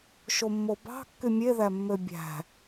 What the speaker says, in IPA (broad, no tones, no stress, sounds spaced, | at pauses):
ʃ o mː o b ɑ̤ kː y mʲ e ð æ mː ø bʲ æ̤